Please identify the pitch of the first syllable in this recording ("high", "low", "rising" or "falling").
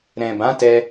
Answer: low